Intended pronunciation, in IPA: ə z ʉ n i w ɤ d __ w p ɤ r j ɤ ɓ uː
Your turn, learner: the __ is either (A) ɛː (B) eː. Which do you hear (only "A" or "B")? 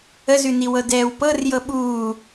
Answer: A